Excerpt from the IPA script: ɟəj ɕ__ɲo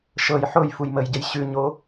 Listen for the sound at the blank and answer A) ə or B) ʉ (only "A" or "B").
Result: B